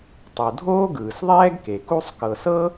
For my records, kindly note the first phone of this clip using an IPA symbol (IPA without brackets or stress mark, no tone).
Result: tˤ